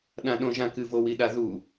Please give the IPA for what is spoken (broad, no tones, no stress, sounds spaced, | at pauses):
ɗ ã ɗ õ ʒ ã k ɨ v o w i ɗ a ð u